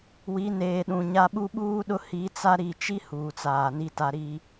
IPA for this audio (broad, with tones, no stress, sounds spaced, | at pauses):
w i˨˦ n eː˨ ɗ ũ˨ ɲ a˦ ɓ u˦ ɓ uː˦ ɗ ʊ˦ h i˨˦ t͡s a˦ ɾ i˨ t͡ʃ i˦ h uː˨ t͡s aː˨ n i˦ t a˦ ɾ i˦